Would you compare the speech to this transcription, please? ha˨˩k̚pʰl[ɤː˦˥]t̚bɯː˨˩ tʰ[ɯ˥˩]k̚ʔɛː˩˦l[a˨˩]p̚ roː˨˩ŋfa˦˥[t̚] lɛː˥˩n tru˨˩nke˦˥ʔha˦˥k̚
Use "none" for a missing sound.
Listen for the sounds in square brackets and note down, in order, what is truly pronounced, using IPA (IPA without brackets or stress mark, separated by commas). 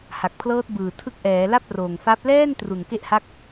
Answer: ɤː˦˥, ɯ˦˥, a˥˩, p̚